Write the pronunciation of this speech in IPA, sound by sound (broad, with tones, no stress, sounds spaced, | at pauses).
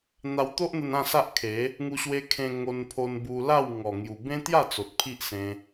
n̪ a˧ w t̪ o˦ ʔ n̪ ə˧ n ã˥˧ s a˦ ʔ kʰ e˨˦ | ŋ u˧ ɕ w e˧ kʰ ẽ˧ ŋ o˧ n pʰ o˧ n b u˧ l a˥˧ w ŋ ɔ˨˩ ŋ j u˨˩ b ẽ˦ t̪ j a˥˧ t͡s o˨ t̚ pʰ i˦ ʔ s ẽ˧